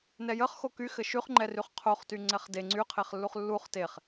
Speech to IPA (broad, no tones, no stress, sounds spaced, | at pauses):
n ɛ j ə χ x o k y x ɘ ʃ y χ ŋ͡ǃ ɛ r y χ qʰ o χ t y ŋ͡ǀ ɛ χ d e ŋ͡ǀ y qʰ e χ lː u χ lː u χ t e χ